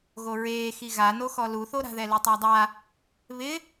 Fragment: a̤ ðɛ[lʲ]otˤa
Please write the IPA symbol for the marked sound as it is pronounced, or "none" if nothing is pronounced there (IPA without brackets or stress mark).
l